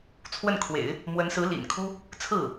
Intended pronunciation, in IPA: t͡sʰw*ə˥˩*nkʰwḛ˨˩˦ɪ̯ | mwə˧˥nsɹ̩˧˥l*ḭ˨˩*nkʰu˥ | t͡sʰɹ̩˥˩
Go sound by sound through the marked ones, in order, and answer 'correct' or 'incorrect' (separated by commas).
correct, correct